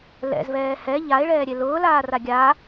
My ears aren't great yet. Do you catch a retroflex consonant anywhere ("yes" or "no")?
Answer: yes